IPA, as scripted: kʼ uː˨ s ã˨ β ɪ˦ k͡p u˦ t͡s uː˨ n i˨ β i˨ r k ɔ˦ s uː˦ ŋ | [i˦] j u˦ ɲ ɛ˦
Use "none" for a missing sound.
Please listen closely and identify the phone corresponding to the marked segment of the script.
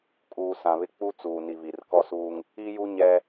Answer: i˦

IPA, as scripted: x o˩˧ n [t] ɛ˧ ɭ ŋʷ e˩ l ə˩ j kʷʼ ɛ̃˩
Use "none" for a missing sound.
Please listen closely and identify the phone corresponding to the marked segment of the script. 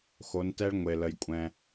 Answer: t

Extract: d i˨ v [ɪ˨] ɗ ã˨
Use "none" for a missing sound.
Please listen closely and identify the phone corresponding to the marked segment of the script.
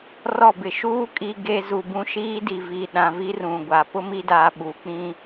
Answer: i˨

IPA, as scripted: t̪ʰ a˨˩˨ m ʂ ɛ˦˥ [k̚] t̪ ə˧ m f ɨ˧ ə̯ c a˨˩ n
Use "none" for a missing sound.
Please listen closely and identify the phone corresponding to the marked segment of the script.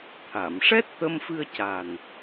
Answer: t̚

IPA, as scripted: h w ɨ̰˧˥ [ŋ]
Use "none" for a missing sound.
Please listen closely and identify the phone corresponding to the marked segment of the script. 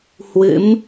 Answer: m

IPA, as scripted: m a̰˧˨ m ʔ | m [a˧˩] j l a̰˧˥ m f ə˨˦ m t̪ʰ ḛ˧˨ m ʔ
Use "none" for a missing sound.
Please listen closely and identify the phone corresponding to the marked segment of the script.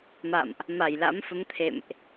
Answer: a˧˩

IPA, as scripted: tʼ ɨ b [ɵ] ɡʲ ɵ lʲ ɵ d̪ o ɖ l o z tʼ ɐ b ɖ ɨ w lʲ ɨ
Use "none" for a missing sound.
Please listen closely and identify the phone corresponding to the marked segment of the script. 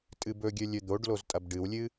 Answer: ɵ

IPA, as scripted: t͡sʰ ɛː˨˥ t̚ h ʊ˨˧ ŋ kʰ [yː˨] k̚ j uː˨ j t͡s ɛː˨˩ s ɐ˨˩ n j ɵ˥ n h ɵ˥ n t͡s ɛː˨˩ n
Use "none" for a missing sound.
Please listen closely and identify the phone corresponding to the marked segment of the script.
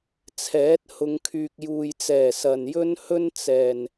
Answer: yː˨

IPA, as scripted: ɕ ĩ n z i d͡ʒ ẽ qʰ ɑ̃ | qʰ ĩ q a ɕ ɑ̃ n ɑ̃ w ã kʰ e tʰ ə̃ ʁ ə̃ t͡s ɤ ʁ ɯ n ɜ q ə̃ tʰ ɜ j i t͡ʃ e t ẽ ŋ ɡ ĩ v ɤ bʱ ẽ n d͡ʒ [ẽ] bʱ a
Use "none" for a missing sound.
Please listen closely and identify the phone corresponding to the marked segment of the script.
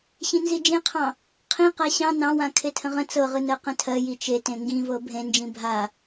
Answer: ĩ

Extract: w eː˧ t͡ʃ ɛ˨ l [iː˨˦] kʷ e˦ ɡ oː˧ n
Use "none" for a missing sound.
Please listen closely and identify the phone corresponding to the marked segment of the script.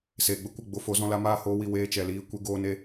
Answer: iː˧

